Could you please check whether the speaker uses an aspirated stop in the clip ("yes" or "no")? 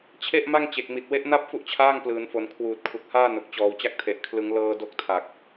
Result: yes